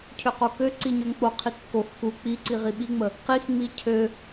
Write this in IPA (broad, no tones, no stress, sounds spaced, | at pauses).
cʰ ø q o k ø ǀ i ɲ ø ŋ k͡p o qʰ i kː o x k u k͡p i ǀ i ʁ i ɓ i ŋ͡m ə | q i x ŋ͡m i cʰ ø